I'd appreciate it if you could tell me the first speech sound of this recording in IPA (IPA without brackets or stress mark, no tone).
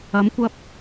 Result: ɐ